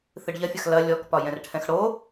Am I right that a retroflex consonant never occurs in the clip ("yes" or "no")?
no